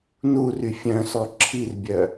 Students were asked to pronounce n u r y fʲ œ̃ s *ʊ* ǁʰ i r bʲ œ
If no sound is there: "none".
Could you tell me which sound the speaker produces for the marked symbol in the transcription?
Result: ɔ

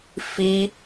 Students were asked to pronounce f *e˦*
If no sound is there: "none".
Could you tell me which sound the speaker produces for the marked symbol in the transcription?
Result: i˦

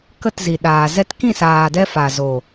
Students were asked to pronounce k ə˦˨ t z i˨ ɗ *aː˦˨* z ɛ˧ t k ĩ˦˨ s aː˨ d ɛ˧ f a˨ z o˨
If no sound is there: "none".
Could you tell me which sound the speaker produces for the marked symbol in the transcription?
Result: aː˨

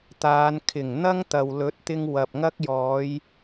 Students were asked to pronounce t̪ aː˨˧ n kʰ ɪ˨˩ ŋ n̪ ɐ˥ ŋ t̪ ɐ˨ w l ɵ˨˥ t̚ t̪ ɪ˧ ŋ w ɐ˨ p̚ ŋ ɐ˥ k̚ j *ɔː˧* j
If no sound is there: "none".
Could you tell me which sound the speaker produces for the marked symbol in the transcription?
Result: ɔː˨˧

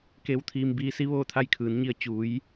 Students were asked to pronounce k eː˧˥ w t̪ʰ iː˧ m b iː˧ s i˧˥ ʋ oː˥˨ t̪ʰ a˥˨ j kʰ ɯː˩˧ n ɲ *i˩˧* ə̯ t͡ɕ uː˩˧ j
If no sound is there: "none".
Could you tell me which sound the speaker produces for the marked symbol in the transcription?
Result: i˧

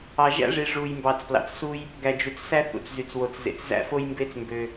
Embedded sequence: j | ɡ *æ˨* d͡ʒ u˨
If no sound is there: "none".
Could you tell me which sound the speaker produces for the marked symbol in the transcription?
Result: æ˨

